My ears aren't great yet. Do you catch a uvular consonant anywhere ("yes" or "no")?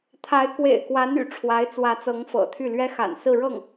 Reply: no